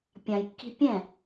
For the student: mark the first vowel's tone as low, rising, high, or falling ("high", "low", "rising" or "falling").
low